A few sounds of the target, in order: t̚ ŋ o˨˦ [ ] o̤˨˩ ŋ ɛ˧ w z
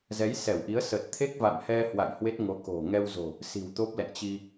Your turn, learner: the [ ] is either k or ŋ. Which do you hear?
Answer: k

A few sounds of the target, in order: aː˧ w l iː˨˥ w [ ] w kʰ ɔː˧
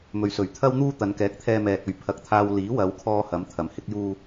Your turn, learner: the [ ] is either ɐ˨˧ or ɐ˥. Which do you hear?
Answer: ɐ˨˧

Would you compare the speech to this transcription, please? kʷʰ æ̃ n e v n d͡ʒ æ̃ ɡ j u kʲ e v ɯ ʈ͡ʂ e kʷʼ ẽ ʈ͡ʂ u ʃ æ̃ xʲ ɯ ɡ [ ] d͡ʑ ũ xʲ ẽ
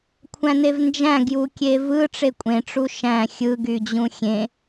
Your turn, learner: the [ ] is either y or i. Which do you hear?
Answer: y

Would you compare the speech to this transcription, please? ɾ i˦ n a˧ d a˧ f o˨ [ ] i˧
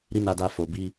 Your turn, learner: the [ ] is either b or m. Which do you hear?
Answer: b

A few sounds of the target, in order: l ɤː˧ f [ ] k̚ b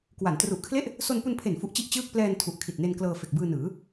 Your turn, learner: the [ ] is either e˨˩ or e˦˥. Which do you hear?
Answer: e˨˩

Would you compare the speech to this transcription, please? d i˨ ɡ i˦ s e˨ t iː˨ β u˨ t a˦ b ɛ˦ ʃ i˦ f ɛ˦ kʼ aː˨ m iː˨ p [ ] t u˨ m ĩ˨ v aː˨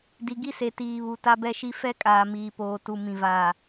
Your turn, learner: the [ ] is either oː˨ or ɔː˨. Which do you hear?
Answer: oː˨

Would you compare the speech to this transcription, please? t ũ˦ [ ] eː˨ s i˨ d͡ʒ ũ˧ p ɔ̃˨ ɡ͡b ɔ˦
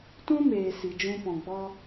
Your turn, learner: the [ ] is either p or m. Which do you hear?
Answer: m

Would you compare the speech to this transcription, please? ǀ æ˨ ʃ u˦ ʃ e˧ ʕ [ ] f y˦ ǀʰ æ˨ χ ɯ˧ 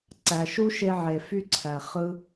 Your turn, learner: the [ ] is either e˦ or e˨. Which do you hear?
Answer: e˨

